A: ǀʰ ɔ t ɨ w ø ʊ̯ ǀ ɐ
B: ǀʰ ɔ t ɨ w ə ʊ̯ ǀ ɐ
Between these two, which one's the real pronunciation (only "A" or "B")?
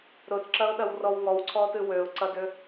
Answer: A